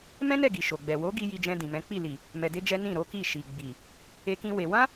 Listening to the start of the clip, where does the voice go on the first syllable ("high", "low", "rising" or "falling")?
high